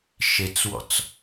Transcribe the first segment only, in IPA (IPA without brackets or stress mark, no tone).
ʃ